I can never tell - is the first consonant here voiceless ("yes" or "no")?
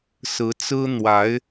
yes